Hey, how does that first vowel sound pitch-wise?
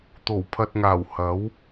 low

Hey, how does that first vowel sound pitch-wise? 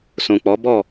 low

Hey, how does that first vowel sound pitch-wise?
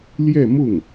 falling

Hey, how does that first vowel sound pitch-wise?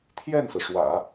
falling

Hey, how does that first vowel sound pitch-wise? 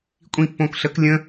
falling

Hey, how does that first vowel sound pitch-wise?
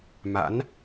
rising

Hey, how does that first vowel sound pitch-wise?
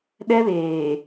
high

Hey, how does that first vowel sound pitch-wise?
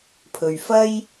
low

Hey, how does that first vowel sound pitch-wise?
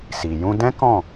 low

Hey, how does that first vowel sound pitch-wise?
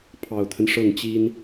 low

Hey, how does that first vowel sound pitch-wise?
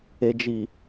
low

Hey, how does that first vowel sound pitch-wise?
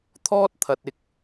high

